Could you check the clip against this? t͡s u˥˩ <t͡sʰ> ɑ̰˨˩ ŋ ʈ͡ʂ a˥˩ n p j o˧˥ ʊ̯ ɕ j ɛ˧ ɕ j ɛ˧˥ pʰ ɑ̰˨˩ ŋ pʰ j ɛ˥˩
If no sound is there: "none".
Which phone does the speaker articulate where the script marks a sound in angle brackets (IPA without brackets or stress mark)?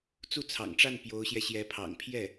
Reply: t͡sʰ